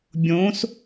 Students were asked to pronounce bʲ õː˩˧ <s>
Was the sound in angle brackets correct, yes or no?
yes